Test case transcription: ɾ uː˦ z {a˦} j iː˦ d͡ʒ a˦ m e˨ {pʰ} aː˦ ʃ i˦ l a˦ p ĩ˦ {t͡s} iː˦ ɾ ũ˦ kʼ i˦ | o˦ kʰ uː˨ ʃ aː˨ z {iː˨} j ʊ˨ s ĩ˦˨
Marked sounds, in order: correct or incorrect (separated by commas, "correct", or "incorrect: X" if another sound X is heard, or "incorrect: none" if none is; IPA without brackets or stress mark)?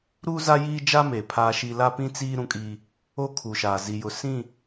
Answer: correct, correct, correct, incorrect: i˨